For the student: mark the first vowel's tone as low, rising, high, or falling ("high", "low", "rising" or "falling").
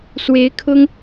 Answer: rising